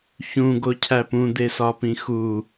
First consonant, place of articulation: palatal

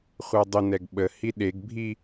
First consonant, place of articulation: uvular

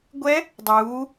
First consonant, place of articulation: velar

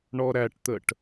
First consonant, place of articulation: retroflex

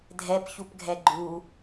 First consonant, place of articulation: alveolar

